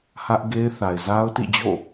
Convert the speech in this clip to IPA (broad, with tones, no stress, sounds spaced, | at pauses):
h ä˦ ʔ ɡ e˦ ɪ̯ θ a˨ ɪ̯ z a˦ ʊ̯ t ḭ˦˨ d͡ʑ o̰˦˨